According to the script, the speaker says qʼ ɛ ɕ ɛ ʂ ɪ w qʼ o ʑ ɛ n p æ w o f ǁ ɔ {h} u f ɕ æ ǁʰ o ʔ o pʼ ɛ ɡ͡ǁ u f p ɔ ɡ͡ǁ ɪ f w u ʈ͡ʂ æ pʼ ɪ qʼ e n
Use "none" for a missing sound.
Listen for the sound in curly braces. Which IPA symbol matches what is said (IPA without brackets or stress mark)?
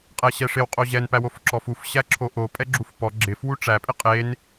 f